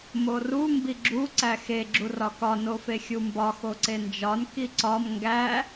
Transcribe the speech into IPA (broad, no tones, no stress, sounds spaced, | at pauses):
m o r u m b i ɡ͡ǁ u ǀ æ x e ɡ͡ǁ u r ɒ k ɒ n o f e xʲ u m b ɒ x o ǀ e n d͡ʒ ɒ n k i ǀ ɒ m ŋ ɡ æ